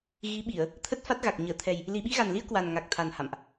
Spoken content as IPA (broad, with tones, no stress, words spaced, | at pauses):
ɣi˨˦ɓi˧˩˨ə̯ | t̪ʰə˦˥t̚fa˦˥t̚ɣa˨˩k̚ ɲəː˧˩t̪ʰɛ˨˩j | li˨˩ɓi˧ɣa˨˩nli˧ə̯ kwa˨˩n ŋa˨˩k̚t̪ʰa˨˩n ha̰˧˨mʔ